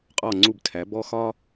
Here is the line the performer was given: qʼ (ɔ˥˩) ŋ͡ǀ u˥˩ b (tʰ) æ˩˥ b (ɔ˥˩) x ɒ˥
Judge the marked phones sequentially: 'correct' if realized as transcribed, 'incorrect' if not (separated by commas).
correct, correct, incorrect